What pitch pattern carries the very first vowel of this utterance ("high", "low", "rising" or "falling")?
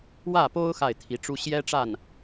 falling